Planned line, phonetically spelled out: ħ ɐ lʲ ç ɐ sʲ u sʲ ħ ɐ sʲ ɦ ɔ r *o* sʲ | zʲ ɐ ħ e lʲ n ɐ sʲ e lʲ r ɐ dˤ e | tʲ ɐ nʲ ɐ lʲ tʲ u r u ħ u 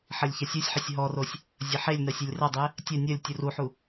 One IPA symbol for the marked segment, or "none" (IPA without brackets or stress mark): o